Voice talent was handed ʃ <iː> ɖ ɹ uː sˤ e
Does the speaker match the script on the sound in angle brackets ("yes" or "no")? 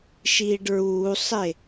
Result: yes